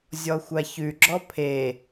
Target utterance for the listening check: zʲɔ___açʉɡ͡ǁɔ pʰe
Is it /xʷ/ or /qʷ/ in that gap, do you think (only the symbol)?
xʷ